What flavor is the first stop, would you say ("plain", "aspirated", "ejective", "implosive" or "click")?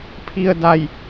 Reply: aspirated